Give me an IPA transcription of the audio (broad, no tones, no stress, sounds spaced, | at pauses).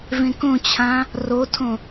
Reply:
v ẽ k õ t͡ɕʰ ã | r o tʰ õ